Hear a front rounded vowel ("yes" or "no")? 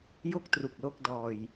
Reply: no